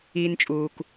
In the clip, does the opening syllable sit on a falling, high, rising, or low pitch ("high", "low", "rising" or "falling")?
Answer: low